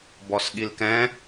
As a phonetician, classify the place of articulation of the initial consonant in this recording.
labial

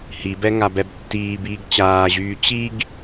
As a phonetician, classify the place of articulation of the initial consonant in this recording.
glottal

